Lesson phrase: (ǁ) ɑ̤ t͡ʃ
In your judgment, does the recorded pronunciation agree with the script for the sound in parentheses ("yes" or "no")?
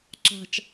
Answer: yes